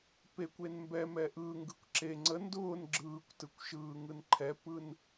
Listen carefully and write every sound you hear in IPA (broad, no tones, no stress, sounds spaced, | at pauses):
p e kʷ e n m b ɛ m ɛ ʔ ɯː ŋ ɡ ɯ kʷ ǁ e ŋ͡ǀ ə n d ʊː n ɡ͡ǁ ɯː kʷ t ɯ kʷ ʃ ɯː ŋ ɯ n ǃʰ ɛ p ɯ n